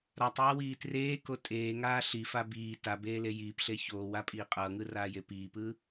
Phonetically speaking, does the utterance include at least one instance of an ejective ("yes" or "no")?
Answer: yes